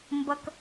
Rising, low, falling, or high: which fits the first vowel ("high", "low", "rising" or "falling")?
high